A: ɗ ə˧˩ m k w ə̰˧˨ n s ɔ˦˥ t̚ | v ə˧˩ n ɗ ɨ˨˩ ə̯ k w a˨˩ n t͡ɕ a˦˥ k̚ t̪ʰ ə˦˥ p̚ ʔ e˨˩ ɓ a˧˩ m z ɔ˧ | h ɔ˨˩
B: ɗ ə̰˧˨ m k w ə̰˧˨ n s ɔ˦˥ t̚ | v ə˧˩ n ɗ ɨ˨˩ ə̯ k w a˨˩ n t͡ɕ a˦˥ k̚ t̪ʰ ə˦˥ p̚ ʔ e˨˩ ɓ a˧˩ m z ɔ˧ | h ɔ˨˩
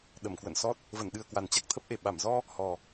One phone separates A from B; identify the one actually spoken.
A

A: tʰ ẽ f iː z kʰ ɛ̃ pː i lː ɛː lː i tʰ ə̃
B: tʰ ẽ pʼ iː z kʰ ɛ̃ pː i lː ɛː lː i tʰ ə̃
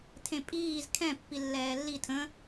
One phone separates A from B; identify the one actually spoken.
B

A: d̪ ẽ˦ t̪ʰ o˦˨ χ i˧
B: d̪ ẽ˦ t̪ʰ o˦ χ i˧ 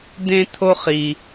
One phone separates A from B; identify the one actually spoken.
B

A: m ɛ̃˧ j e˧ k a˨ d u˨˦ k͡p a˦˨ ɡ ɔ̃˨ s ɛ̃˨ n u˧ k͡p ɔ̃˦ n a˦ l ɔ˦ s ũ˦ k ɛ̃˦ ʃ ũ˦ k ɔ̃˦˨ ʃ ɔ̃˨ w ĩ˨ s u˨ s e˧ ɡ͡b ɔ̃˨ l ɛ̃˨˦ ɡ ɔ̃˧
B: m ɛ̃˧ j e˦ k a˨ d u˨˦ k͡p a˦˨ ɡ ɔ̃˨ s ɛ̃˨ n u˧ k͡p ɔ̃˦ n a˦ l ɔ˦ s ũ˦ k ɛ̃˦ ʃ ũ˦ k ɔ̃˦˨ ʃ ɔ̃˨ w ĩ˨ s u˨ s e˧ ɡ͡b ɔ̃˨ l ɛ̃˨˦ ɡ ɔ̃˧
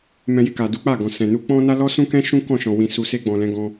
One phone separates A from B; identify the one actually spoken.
A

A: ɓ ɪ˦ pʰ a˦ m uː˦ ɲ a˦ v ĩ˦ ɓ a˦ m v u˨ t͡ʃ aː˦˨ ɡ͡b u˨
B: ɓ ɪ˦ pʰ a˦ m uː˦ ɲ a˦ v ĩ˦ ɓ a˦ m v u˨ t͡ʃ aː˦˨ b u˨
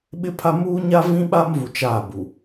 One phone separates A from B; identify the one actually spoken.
B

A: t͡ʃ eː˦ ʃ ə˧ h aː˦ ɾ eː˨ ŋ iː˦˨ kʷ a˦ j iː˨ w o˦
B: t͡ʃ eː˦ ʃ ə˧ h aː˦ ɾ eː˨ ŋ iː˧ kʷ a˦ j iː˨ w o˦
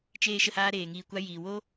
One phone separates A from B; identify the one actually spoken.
B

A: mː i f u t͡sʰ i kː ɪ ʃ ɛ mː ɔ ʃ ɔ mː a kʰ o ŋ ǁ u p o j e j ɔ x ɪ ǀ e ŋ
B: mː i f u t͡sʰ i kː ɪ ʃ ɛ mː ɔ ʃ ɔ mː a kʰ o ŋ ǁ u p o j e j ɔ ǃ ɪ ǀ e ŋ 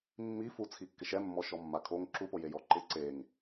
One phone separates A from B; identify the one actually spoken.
B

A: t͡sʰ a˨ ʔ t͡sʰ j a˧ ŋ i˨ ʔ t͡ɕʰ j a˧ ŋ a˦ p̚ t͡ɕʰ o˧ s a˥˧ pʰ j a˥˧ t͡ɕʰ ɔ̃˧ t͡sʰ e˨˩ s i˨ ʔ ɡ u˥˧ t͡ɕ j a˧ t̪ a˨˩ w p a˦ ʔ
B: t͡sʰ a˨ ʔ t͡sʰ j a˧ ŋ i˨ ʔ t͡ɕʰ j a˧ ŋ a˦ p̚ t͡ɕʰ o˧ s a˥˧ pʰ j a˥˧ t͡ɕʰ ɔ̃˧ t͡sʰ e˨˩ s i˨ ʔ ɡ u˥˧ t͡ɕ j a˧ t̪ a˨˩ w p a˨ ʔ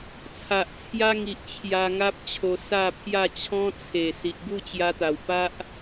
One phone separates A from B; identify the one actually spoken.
A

